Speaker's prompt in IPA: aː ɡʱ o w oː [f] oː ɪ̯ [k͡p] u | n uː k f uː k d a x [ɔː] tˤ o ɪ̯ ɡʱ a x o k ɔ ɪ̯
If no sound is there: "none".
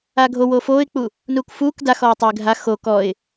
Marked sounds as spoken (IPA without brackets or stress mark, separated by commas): f, k͡p, ɔː